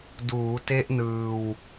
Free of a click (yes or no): yes